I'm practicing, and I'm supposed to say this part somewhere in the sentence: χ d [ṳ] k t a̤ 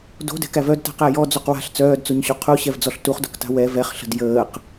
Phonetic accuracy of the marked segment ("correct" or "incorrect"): incorrect